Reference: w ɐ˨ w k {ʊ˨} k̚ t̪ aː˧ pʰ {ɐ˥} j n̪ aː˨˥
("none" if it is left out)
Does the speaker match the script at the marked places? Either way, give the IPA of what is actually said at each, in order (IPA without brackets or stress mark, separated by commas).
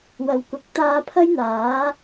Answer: ʊ˨, ɐ˥